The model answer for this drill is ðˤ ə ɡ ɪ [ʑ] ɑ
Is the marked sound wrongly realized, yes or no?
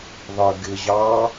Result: no